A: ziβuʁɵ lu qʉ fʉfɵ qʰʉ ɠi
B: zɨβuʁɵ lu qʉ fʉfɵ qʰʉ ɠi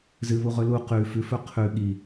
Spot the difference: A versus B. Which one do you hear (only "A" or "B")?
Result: B